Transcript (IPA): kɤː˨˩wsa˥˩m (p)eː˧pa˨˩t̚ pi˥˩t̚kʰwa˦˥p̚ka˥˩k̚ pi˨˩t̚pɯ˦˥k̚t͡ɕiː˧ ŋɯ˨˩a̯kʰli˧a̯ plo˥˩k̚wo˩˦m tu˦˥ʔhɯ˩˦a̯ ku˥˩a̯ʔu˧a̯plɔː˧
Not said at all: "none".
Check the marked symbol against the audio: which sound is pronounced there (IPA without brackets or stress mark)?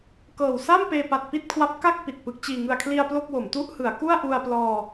p